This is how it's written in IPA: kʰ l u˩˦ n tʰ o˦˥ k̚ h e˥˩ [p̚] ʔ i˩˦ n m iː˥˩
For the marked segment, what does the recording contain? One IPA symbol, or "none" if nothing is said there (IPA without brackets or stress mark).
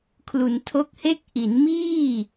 k̚